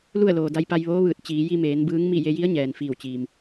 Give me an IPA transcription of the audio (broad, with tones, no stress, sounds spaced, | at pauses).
l u˥˨ ə̯ l oː˩ d a˧ j p a˧ j ʋ oː˧˥ ʋ ɯː˧˩ t̚ t͡ɕ iː˩˧ j i˧ m eː˩˧ n b ɯː˧˥ ŋ m i˥˨ j e˧ j i˧˥ ə̯ ɲ ɛː˩ n f iː˧˩ w t͡ɕ iː˩ m